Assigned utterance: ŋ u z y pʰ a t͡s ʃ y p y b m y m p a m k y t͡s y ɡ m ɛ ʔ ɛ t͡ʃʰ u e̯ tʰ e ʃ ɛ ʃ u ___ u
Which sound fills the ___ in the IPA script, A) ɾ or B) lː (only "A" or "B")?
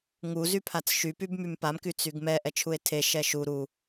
A